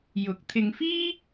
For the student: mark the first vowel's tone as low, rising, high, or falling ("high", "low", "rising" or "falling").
rising